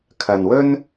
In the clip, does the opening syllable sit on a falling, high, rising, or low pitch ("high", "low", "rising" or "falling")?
low